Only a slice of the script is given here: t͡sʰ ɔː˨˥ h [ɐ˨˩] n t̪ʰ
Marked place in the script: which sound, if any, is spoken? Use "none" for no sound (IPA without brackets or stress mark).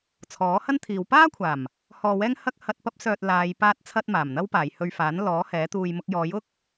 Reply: ɐ˥